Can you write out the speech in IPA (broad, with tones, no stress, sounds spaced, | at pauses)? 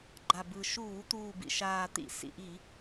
ɡ͡ǃ a˨˩ b ɯ˨˩ ʃ uː˧˩˧ t̪ uː˨˩ b ḭ˨˩ ʃ aː˨˩ t̪ ḭ˧˩˧ s ḭ˨˩ ʔ i˧˩˧